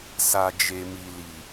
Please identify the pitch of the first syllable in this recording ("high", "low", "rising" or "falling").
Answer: low